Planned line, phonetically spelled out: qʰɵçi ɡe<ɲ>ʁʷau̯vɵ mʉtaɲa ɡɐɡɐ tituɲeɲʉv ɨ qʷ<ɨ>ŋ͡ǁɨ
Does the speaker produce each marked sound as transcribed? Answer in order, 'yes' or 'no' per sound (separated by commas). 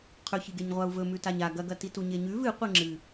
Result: yes, no